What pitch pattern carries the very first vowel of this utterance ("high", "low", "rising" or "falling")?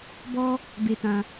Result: high